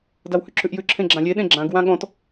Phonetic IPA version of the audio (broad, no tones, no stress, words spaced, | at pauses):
dawhʉǁʰʉʔjʉ ǁʰẽɡ͡ǁãlʲe ɗẽɡ͡ǁãɡ wãɠɔ̃t